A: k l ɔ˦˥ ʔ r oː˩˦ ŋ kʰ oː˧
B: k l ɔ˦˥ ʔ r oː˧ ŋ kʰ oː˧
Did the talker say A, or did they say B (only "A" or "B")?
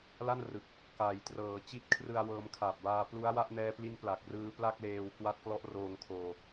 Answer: B